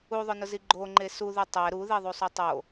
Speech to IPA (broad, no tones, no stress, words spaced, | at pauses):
uðˤʊnʊzi ɡ͡ǃoŋ͡ǃe suðu tˤɛ ɾuðiðˤusˤu tˤo